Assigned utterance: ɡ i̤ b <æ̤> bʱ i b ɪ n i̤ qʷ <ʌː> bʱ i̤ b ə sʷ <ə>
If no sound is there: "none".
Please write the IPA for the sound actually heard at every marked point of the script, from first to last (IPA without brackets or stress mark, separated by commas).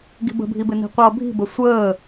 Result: ə̤, ʌː, əː